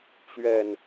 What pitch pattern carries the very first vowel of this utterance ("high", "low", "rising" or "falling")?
low